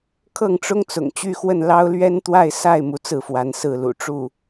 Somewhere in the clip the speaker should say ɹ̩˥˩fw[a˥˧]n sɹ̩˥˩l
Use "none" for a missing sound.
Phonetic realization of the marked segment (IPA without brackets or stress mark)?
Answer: a˧˥